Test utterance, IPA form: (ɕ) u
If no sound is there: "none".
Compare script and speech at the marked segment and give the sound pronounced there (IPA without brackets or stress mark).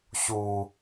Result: ɕ